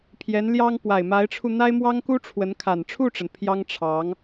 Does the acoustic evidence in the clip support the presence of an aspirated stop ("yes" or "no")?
yes